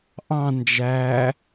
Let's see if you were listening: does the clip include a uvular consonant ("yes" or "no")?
no